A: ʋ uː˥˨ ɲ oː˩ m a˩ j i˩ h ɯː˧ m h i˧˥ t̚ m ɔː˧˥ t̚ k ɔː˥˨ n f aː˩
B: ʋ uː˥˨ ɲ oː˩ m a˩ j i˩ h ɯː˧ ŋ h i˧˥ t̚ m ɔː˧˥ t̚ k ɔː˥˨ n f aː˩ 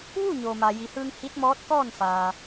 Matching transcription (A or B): B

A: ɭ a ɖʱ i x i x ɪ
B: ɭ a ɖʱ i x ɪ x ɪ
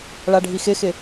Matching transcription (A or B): B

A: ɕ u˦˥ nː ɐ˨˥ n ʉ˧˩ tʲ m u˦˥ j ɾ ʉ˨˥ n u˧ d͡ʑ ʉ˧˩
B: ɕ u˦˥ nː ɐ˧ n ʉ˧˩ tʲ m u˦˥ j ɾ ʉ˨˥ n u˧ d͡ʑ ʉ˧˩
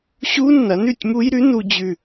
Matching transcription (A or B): A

